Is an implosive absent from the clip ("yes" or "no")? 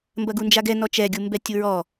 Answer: yes